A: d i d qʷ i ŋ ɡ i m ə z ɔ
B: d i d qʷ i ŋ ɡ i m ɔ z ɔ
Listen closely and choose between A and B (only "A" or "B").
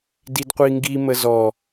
A